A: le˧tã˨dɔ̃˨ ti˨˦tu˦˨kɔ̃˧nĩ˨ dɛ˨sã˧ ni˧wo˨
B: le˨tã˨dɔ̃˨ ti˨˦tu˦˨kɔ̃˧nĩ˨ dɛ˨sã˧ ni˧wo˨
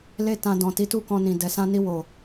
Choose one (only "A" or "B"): A